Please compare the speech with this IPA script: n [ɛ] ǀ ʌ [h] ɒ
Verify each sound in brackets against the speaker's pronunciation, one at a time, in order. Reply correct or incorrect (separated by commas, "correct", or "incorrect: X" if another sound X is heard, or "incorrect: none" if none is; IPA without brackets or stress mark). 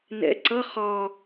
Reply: incorrect: ɛ̰, incorrect: χ